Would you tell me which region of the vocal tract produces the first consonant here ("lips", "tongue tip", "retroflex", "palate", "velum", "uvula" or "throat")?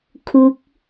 velum